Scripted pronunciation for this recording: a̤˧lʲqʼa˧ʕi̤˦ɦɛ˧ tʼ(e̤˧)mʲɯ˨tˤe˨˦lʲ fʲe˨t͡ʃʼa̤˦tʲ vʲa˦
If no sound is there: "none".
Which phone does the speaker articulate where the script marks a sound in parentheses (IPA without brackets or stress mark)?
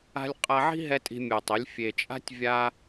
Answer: i̤˧